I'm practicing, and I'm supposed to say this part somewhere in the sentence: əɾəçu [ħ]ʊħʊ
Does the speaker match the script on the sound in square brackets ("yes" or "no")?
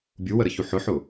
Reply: yes